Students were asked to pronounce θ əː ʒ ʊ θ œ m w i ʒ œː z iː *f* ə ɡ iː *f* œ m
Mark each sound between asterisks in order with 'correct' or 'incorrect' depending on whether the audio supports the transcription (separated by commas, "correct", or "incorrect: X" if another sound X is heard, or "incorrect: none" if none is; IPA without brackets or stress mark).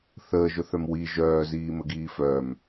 incorrect: m, correct